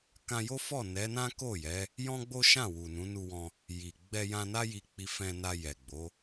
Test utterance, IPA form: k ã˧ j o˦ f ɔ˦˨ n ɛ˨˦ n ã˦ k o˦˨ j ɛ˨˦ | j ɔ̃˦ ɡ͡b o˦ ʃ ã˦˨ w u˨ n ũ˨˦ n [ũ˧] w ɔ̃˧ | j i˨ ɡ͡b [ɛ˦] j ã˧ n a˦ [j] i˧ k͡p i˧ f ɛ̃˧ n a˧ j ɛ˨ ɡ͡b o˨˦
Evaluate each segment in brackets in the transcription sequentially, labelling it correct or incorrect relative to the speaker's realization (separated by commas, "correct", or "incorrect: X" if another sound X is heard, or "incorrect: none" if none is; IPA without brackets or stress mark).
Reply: incorrect: u˧, incorrect: ɛ˧, correct